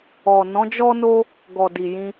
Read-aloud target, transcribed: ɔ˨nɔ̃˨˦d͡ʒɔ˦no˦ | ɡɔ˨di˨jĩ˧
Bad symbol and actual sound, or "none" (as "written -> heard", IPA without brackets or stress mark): none